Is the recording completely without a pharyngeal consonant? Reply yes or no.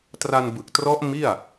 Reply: yes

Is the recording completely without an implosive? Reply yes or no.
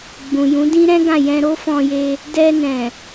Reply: yes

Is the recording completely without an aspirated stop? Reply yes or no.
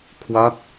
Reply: no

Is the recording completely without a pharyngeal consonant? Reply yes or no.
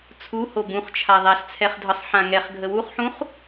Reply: no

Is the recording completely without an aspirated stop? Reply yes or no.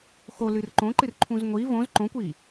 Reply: no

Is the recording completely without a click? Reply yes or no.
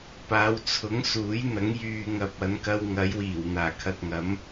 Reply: yes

